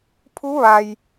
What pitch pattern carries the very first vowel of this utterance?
rising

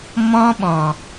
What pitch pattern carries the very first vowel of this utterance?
high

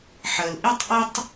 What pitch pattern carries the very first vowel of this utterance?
low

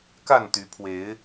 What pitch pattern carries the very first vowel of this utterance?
falling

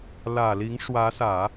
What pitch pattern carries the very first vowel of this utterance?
low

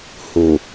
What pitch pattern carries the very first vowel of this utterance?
low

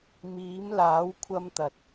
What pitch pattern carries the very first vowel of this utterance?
rising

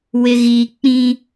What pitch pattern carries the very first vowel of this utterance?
high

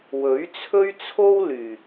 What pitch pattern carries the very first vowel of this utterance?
rising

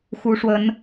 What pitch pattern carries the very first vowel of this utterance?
rising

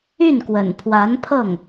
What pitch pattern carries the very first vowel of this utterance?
falling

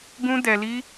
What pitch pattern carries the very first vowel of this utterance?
high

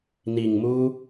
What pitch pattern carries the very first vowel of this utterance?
low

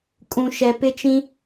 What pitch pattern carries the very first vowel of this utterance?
low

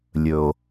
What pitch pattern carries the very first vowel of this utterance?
low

